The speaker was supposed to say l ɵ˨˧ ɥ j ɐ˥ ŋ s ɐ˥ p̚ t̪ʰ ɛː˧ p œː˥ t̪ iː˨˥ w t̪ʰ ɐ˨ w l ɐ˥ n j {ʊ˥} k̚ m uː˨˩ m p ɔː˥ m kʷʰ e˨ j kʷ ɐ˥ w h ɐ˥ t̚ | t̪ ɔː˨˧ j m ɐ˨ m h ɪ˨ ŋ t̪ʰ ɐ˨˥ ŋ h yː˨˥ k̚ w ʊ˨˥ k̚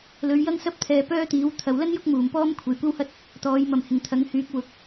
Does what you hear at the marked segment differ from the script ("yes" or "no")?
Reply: no